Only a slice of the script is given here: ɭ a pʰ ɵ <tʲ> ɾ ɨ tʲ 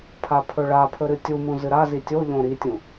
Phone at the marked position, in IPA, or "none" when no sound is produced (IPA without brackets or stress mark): none